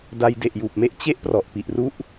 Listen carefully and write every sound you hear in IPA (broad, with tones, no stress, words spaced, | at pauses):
da˧jde˨˩ʔjuː˨˩p̚me˦˥ʔ t͡ɕe˦˥ʔ prɔ˨˩ʔpi˨˩ʔru˥˩ʔ